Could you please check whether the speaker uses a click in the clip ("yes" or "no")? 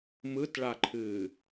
yes